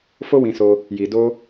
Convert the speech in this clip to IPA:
f o˦ w ĩ˧ s o˧ | j i˧ d o˦

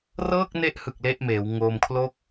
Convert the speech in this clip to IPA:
r ɤː˥˩ k̚ n e˦˥ ʔ h ɯ˨˩ k̚ l e˥˩ ʔ m eː˩˦ w ŋ oː˧ m kʰ l o˥˩ k̚

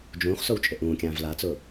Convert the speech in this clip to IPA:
d͡ʒ ũː χ s o w t͡ʃʼ ɪ ʔ ũː kʲ ãː v l a t͡s ʊː

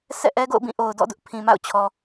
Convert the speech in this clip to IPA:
sʰ ɛ̰˦˨ ʔ ɛ˦ ɡ o̰˦˨ ʊ̯ b ĩ˦˨ ʔ o˨ ʊ̯ d ɔ̰˦˨ d ʊ˦ ʔ pʰ ĩ˨ m a̰˦˨ ʊ̯ t͡ɕʰ ɔ˨

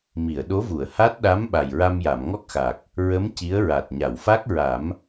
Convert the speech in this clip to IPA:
m i˨˩˨ ə̯ ɗ o˧˥ v u˨˩˨ ə̯ h a˦˥ t̚ ɗ a˧˥ m ɓ a˨˩ j ɹ a˧ m j a˨˩˨ m ŋ ɔ˦˥ k̚ x a˨˩ k̚ | ɹ ə˧˥ m c i˧˥ ə̯ ɹ a˨˩ t̚ ɲ a˨˩˨ w f a˦˥ k̚ ɹ a˨˩˦ m

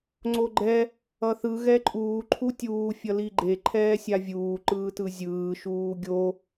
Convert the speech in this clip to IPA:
ŋ͡ǀ o ɡ͡ǃ ɛ | ʌ θ ɯ ɣ ɛ ǃʼ uː ǃʰ u tʲ uː fʲ ʌ l i ɡ͡ǃ e ǃʰ ɛː sʲ a vʲ uː ǃ ɯː t ɯ zʲ ɯː ʃ uː ɡʲ o

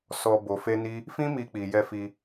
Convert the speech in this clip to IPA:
s ɔ˧ b o˧ f e˦ n i˦ | f ĩ˦ m i˧ k͡p i˨ j ɛ˧ f i˧

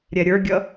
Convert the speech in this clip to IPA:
ɾʲ ɛ ɾʲ ə˞ ɡʲ ʌ

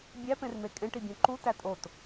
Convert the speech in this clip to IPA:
bʲ æ p ẽ r m e kʼ ẽ ʈ i bʲ õ ǃ u t æ tʼ o t

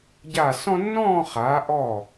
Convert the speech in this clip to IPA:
ɟ a˧˩ s ɔ̃˦ nː ɔ̃ː˥˨ χ a˩˧ ʔ ɔ˧˩

